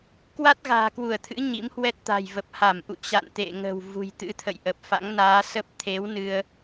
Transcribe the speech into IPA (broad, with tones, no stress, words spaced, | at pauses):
kwa˦˥t̚ɣa̤ː˨˩kwu˧˩ə̯t̪ʰɨ̰˧˥ ɲḭ˧˥mhwɛ˦˥t̚t̪a̤˨˩jvə˨˩p̚ ha˧˩mʔṵ˧˨ t͡ɕa̰˧˨n t̪ḛ˧˨ ŋə̤˨˩w vṳ˨˩jt̪ɨ̰˧˥t̪ʰə̰˧˨jʔə˨˩p̚ fa̰˧˥ŋnaː˨˦sə˦˥p̚ t̪ʰe˨˦w nɨ˧ə̯